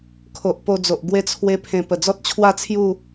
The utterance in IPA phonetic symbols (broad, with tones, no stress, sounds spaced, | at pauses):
kʰ o˨ ʔ p o˧ d͡z o˨ ʔ ɡ w e˧ t͡sʰ w e˧ pʰ ẽ˨˩ p ə˨˩ d͡z ɔ˦ t̚ t͡ɕʰ w a˥˧ t͡sʰ j u˥˧